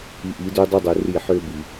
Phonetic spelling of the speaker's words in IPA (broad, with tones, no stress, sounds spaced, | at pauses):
i˧ ʔ i˨˦ d ø˦ dˤ i˦ dˤ ø˧ r i˦˨ ħ ø˦ b i˧